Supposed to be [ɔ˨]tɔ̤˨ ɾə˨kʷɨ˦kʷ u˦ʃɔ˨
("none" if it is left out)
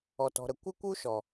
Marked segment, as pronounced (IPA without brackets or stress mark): ɔ˨